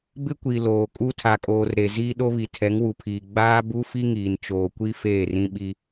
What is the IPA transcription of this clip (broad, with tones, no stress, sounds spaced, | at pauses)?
b ɪ˦ kʷ i˨ l oː˨ kʼ u˦ tʰ a˨ kʼ oː˨ r ɾ e˨ z iː˦ ɗ o˦ β i˨ tʰ ɛ˨˦ ŋ w u˨ pʰ iː˨ ɡ͡b aː˦ b u˦ f i˦ ŋ iː˨ n t͡ʃ oː˨ kʷ i˦ f eː˦˨ r ĩ˦ ɓ i˦